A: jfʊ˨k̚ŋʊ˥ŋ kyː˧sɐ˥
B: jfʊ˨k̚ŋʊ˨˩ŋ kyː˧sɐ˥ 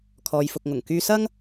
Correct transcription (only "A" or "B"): B